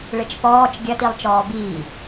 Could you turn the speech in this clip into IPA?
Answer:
ɭ ɘ t͡ʃ p ɔː t͡ʃ ɡʲ ɐ t i lˠ t͡ʃ ɔː b iː

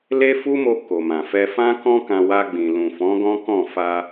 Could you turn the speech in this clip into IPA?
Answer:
l e˦ f u˦ m o˧ k o˨ m ã˨ f ɛ˧ f ã˦ k ɔ̃˦ k ã˧ w a˧ ɡ͡b ĩ˨ l ũ˨ f ɔ̃˨˦ ɡ ɔ̃˦ k ɔ̃˦˨ f a˧

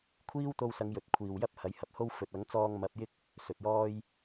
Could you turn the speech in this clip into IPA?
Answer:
kʷʰ iː˥ w t̪ o˧ w s ɐ˨˧ ŋ j ɵ˨ t̚ kʷʰ iː˨ w j ɐ˥ p̚ h ɐ˨˥ j h ɐ˨ p̚ h o˥ w f ɵ˨ t̚ ɐ˨˥ ŋ t͡s ɔː˧ ŋ m ɐ˨˥ p̚ j ɪ˥ k̚ | s ɵ˨ t̚ j ɔː˥ j

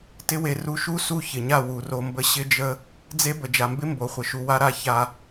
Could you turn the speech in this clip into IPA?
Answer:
t ɪ˦ w e˧ r u˧ ʃ u˦ s u˦˨ ç ɪ˨ ɲ a˦˨ w u˨ r o˧ m b ə˦ ɕ ɪ˦ d͡ʒ ə˦ | d͡z e˦ b ə˨ d͡ʒ a˨ m b ɪ˦ m b o˨ χʷ ə˨ ʃ u˨ w a˦ ɾ a˧ ç a˧

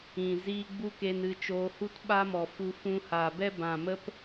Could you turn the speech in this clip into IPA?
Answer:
ĩ˨ z iː˧ ɡ͡b u˦ k e˧ n ɨ˧ t͡ʃ oː˧ h u˦ t ɓ a˦ m ɔ˨ f u˧ f ũ˧ h aː˨ b ɛ˦ b ã˨ m ə˦ p

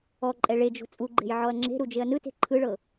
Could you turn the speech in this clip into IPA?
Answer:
ɔ ǃʼ ɛ ɭ e d͡ʒ o̤ t͡sʼ u ɡ͡ǃ e̤ j ʕ ɔ ɐ̯ ŋ͡ǁ e̤ ɾ u d͡ʒ e ɐ̯ n ɯ t e̤ ǃʰ ɯ ɭ ɤ

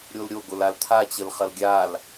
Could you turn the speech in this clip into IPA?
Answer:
ɾʲ o l ɾʲ o ɡ o l a l t̪ʰ a t͡ɕ ə l χ ɐ l ɡʲ a l

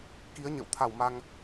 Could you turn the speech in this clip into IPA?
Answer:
k i˨˦ ə̯ ɲ ə̰˧˨ w t̪ʰ a˧˩ w m a˧ ŋ

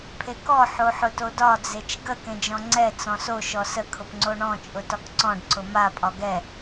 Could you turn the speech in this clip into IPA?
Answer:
pʰ e k ɔ ħ o ħ ʊ t o d ɒ d͡z e t͡ʃ ɡ ə k ẽ d͡ʒ ɔ̃ ŋ͡ǀ ɛ t͡s ɔ̃ s o ʃ ɔ s ə kʰ ʊ p ŋ͡ǀ o ɳ ɔ̃ t͡ʃʼ ʊ t ɒ k ǀ ɔ̃ ɖ ǀ ʊ m a pʼ ɒ ɡ ɛ

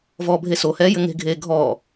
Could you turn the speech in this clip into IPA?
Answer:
v ɔː bʱ e s o h ɛː j ɘ ŋ e̤ ɡʱ eː ɡʱ ɔː

